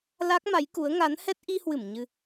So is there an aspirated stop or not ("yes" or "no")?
no